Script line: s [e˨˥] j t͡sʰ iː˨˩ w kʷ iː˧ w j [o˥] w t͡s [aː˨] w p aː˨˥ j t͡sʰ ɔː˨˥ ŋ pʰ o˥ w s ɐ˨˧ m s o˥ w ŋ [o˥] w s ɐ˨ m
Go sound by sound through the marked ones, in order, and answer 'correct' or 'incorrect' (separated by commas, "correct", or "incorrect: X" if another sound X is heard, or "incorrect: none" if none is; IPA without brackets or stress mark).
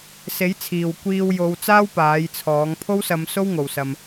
correct, incorrect: o˨˧, incorrect: aː˥, incorrect: o˨˩